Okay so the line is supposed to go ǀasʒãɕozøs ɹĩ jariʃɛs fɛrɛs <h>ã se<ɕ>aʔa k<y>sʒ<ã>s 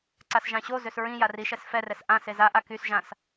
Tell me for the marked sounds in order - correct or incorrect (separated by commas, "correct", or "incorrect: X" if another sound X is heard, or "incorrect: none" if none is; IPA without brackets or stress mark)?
incorrect: ʔ, incorrect: z, correct, correct